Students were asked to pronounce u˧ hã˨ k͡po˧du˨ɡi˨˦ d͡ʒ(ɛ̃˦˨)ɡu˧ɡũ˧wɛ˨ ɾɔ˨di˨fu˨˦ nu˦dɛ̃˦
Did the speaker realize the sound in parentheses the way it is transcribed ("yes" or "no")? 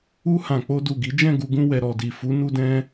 yes